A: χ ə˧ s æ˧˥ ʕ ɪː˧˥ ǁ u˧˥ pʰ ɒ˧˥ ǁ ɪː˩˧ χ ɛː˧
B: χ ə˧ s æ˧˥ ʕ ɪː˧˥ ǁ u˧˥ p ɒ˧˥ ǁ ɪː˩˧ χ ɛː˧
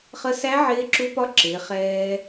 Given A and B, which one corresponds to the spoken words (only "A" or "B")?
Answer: B